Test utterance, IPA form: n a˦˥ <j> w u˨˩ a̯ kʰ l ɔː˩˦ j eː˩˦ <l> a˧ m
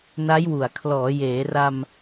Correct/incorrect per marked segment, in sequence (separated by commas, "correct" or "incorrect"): correct, incorrect